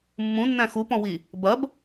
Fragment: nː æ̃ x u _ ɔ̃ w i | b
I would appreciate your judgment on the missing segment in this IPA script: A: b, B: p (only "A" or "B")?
B